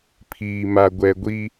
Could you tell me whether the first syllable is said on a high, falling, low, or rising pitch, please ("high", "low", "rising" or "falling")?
low